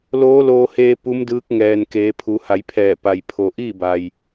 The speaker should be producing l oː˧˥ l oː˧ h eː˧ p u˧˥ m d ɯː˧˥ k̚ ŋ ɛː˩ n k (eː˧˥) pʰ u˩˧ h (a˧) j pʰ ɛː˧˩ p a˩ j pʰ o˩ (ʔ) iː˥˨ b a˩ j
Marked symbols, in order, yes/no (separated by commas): no, no, yes